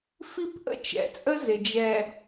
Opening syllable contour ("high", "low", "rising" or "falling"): falling